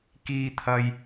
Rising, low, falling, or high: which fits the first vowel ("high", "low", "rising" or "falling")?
low